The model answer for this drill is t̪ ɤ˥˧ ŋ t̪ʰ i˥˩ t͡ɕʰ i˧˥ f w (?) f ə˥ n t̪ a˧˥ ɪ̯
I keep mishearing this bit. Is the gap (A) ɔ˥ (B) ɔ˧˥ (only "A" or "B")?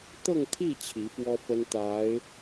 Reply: A